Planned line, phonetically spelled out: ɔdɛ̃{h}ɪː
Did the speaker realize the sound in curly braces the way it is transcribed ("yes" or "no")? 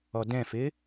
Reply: no